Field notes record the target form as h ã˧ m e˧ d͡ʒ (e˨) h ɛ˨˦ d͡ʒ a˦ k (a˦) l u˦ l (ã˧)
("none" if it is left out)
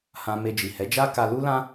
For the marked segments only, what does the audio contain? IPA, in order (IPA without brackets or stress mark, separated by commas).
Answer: i˨, a˦, ã˦